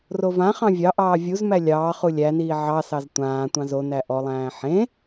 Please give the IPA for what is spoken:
r o v ã χ ɑ̃ vʲ ɑ ʔ ɑː vʲ u z m æ lʲ ɑː χ u lʲ æ n iː ʕ ɑ s ɑ z tʷ ãː tʷ ɑ̃ z o n æ ʔ ɔ lˠ æ̃ː ħ ẽ

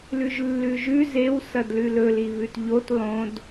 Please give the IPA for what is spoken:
l ʉ ʒ lː ʉ ʒ ʉ z e w s ɐ d l ʉ l ɵ l i β ʉ t ʎ o t lˠ õ d

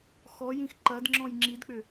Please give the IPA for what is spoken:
x ɔ j ĩ x ǃ ɐ d ŋ͡ǁ ɔ̃ j ŋ͡ǁ i d k͡p ʏ

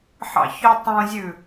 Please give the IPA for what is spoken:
ħ ɑ̰ ç œ tˤ ũ zʲ ʉ

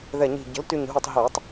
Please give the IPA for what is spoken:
ð ɛ˧˩ ɲ i̤˧˩ ɟ ə̤˩˥ l t y˧˩ ɲ ɦ u˧˩ tˤ ɦ e˧˩˧ tˤ

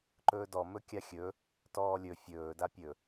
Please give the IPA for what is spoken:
ǃ ɵː d ɔ m ɵ kʲ a xʲ ɵ | t ɔː lʲ ɵ fʲ ɵː d a pʲ ɵ

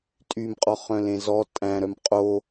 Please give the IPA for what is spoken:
tʼ y m qʼ ɔ χ œ̃ l ẽ z ɔ tʼ æ̃ ɾ œ m qʼ o

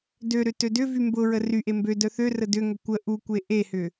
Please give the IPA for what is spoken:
d ø ɾ ʏ t ø d ʏ v y m b ʊ ɹ ə r y ʔ e m b ø d œ θ ø r ə d ʏ ŋ ʏ kʷ ə ʔ u kʷ e ʔ e h ʏ

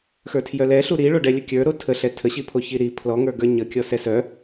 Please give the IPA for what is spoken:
x ə˞ tʰ j œ l ɛ ɬ u ɾ i ɭ o ɖ ɛ lʲ ə kʲ ə˞ ɾ o tʰ ə ɬ ɛ tʰ ə ɕ i pʰ o ç i ɾ i pʰ l ɔ ŋ ə˞ ɡ ə˞ ɲ ə kʲ ɔ s ɛ s œ

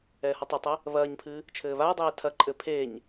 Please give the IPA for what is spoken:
ɛː h ɔ tˤ e tˤ ɘ | β ɐː ɲ pʰ ɨ | t͡ʃʰ ɘː β aː dˤ ɛː tʰ ɐ ǃʼ ɘ pʰ eː ɲ

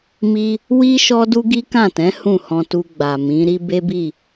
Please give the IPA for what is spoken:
m i˦ | w i˦ ʃ ɔ˦ d u˦ ɡ i˦ k ã˦˨ t ɛ̃˨˦ h ũ˦˨ h ɔ̃˧ t u˧ ɡ͡b a˨ m ĩ˨˦ ɾ i˦ b e˦ b i˦˨

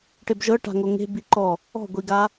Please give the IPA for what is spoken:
ʈ e b ʒ ɤ ʈ a̤ ŋ o ŋ e̤ b i ǃ ɔ | ɔ̤ ɡʷ i ɡ a

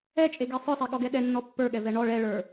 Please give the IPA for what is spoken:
ɛ t͡ʃʼ e ɡ e sˤ ə˞ sˤ e ɠ ɔ ɡ ɛ ɗ ɛ nː ɔ pː ə˞ ɠ ɛ v ɛ ɳ ɔ ɭ ɛ ɭ ə˞

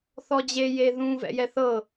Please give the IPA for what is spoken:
θ ɔ d͡ʑ e j e ð ũ v ɛ̰ j ɛ θ ɤ

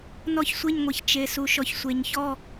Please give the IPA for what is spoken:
n ɔ˦˨ ç sʷ e˦˨ ɲ ŋʷ e˩ ç t͡ʃ e˩ s u˩ ʃ ɔ˩ ç sʷ e˩ ɲ ç ɔ˦˨

